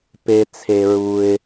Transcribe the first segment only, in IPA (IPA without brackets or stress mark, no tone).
p